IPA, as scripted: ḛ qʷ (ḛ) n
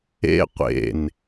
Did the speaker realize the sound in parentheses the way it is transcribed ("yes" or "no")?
yes